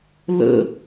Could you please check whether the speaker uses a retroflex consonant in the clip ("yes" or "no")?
no